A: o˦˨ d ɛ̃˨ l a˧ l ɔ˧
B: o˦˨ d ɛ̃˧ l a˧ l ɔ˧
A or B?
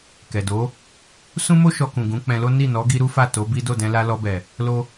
B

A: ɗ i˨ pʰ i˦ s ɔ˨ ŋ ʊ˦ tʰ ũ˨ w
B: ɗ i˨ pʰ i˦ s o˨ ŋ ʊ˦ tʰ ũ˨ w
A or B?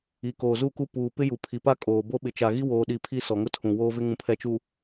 A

